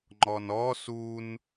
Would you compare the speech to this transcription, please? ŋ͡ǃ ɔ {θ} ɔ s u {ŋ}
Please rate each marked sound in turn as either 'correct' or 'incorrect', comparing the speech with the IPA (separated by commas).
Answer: incorrect, incorrect